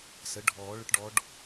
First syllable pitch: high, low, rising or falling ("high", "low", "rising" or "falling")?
rising